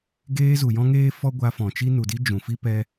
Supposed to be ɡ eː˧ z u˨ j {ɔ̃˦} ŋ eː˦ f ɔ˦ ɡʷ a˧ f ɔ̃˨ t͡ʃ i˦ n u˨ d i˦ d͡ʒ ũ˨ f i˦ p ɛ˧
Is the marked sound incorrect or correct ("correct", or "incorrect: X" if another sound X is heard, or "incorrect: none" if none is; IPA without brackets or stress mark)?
correct